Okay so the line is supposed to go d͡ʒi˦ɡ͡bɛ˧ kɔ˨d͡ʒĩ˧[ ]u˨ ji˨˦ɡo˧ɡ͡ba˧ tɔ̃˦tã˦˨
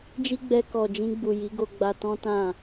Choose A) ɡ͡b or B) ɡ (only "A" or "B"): A